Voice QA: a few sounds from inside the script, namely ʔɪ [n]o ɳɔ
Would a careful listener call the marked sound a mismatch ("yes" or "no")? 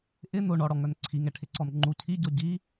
no